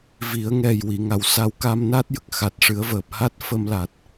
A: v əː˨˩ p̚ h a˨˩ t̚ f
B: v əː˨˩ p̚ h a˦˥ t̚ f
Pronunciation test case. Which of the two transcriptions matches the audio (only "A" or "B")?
B